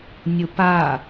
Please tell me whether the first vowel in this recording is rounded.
yes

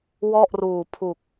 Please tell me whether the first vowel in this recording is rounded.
yes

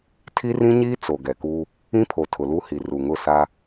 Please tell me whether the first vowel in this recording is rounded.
no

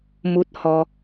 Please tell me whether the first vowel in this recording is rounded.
yes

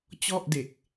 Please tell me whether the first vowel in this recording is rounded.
yes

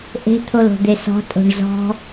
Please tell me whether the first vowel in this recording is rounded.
no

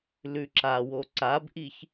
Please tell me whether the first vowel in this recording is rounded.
yes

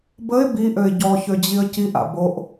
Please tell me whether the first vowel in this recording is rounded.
no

